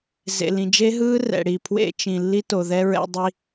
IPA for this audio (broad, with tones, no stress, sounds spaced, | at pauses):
z ḛ˨ l ĩ˨ d͡ʒ e˦ ɦ ɯː˦ r ɛ̰˨ ɽ i˨ pʰ w ḛ˦ t͡ʃ ĩ˨ lː i˦ t o˨ ð ɛ˦ ɹ ɛ̰˦ dˤ i˦